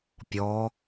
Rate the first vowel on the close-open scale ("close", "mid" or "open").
mid